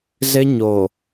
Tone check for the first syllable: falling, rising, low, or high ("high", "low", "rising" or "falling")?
high